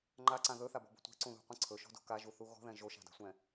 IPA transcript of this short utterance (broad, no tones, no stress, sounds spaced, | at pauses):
ŋ͡ǃ a ǀ ã ð ɵ θ a b ɔ̤ b o̤ tʷ ɛ̤ ǀ ũ ð ṳ qʷ ɛ̃ ǀʰ ɵ ʃ ɔ̤ d o̤ k a ʒ u θ u ɣ ɔ̤ ð ɛ̃ ʒ o ʃ a̤ d a̤ sʷ ɛ̃